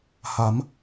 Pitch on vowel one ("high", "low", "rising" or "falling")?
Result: rising